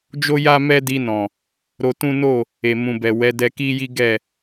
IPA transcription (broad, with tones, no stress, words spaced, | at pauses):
d͡ʒo˦ja˦ mɛ˦di˧nɔ̃˨ | ɾo˧tũ˦no˦˨ | e˨mũ˨bɛ˨ wɛ˨˦ dɛ˧ki˦ji˦ ɡɛ˦˨